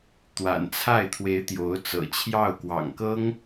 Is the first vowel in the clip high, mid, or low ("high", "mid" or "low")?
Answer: low